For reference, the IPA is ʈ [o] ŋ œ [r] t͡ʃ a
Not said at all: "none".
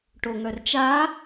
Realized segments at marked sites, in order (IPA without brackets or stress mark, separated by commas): o, r